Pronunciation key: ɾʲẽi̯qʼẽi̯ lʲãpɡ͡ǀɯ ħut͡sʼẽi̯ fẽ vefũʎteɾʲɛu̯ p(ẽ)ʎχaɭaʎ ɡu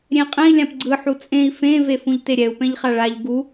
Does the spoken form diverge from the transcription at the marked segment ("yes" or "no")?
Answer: yes